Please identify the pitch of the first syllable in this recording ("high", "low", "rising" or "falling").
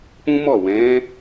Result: high